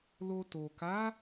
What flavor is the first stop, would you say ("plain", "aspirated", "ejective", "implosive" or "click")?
plain